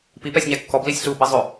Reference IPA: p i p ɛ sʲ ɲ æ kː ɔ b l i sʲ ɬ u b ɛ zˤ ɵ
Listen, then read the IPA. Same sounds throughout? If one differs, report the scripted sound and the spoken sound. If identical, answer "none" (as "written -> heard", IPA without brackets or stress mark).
none